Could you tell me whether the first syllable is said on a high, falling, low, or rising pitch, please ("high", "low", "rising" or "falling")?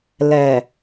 low